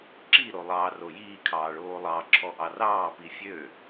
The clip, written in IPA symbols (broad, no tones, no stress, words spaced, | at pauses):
ǁiɾo lˠɑːrojiːkʰɑː ɭoːlˠɑǁʰɔ ʔɑrɑːpi fʲø